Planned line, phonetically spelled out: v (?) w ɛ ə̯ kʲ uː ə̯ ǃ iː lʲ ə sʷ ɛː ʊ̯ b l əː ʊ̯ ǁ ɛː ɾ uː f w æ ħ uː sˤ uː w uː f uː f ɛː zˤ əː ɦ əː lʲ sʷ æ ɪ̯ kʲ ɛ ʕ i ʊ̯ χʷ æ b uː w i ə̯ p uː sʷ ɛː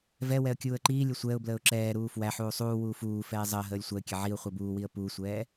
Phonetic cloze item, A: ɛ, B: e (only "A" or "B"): A